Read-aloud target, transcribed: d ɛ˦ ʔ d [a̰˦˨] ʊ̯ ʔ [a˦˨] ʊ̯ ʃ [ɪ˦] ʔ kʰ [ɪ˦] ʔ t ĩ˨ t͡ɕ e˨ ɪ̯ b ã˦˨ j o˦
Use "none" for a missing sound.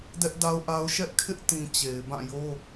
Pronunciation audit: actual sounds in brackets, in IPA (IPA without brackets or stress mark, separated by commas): a˦, a˦, ɛ˦, ɪ˦